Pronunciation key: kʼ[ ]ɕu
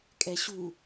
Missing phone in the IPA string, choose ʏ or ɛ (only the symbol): ɛ